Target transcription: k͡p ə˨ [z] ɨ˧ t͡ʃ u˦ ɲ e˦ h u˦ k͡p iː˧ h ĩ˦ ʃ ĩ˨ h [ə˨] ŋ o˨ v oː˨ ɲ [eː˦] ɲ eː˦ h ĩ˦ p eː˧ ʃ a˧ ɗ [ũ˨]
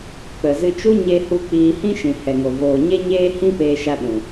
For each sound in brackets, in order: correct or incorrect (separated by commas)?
correct, incorrect, incorrect, correct